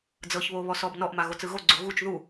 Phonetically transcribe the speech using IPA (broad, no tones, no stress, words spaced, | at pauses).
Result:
d͡zɤçβo βɔsɔbnɔʔma ɣot͡sɯɣoɡ͡ǀo ɣut͡ʃ ðu